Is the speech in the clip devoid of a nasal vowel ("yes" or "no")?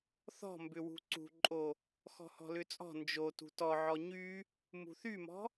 yes